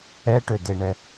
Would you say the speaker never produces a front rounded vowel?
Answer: no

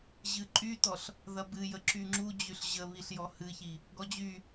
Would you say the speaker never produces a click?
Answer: no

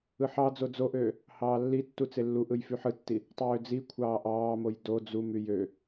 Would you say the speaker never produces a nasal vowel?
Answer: yes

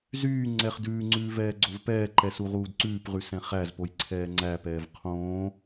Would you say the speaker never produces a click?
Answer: no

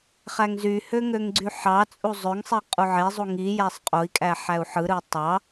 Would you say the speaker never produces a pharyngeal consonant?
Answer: no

